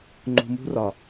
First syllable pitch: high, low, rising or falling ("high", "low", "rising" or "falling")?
low